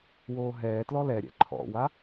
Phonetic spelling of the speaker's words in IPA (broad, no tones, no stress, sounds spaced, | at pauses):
w oː ɦ ɛː t l ɔ l ɛ ɾʲ ɛ̰ ǃʰ ɔ̰ w a